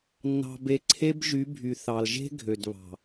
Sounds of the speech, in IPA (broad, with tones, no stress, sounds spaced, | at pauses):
nː ɑ̤˨ b e˨ ǀʰ e˦ b ʒ y˨˦ bʱ y˨ θ ɑ˨ l ʒ e̤˦ ɡʱ ø˨ d β ɑ̤˨